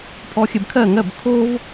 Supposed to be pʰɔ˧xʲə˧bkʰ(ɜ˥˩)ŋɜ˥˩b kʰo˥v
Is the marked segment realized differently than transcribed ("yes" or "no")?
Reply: no